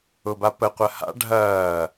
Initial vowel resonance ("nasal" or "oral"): oral